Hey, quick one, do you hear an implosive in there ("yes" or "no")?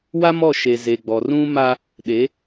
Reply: yes